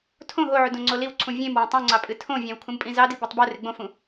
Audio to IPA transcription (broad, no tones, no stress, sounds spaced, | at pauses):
tʰ õ ɦ o ʕ u d õ ŋ͡ǀ o l i w ǀʰ ũ vʲ ẽ m w ẽ tˤ ũ ŋ͡ǀ ɑ pʼ ɨ tʰ õ vʲ ɑ̃ w kʰ ũ m pʼ ĩ z ɑ d i b u tˤ b o r e ɡ͡b õ f ũ